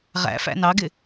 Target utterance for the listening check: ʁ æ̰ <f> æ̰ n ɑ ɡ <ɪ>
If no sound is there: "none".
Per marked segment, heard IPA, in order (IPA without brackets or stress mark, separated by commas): f, ɪ